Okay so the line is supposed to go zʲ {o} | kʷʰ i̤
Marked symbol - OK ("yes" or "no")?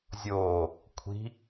no